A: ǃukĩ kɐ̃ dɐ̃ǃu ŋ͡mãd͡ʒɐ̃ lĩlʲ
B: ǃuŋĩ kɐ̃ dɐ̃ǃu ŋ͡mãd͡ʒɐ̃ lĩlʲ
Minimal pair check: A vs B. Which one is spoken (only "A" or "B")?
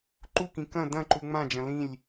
A